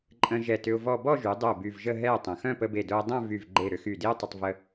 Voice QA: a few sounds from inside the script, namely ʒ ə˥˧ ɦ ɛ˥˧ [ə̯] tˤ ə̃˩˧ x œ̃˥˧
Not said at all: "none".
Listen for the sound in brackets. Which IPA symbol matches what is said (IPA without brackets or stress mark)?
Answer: ə̯